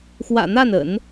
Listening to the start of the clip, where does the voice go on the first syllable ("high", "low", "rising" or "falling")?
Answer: low